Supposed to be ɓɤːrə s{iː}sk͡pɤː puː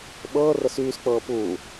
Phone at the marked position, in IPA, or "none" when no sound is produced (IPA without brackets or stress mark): yː